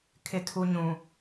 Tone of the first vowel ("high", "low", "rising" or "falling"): low